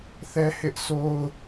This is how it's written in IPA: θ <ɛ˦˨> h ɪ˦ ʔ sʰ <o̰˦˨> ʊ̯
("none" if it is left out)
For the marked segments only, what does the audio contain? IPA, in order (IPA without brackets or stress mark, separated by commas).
ɛ˦, o˦